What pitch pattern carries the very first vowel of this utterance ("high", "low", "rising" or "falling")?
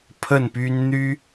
falling